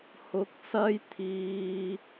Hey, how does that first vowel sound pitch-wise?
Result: rising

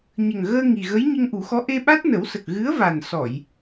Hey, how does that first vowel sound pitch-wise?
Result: low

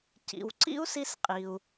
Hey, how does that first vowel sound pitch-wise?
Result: low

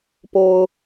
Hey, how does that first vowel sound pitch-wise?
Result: low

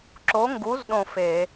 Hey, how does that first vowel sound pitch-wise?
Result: rising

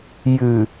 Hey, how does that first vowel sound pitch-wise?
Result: low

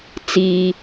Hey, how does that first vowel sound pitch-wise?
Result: low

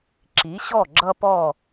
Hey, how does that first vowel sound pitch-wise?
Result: rising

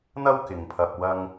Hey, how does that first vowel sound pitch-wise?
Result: high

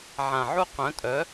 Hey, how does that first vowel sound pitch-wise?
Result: low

